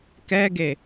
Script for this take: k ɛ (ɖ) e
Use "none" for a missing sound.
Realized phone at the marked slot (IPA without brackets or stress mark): ɡ